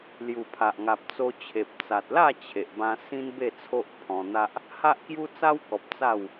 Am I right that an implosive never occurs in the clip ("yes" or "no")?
yes